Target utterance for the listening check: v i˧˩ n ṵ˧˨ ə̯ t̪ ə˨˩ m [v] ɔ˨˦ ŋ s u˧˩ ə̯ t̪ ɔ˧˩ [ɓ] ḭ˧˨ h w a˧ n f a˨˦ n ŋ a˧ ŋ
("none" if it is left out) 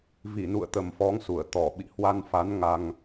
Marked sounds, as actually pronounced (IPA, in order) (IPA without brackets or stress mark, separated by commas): f, ɓ